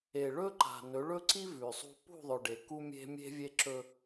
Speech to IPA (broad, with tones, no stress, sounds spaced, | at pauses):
e˨ ɭ ɵ˦ ǃ a̤˨ n ɵ˨˦ ɭ ɵ˦ ǀ i˦ v ʉ˨ sˤ ṳ˦ p ṳ˦˨ ðˤ ɵ˨ ɖ e˨ k u˦ mʲ e̤˦ mʲ e̤˦ vʲ e˦ ǁ ɵ˦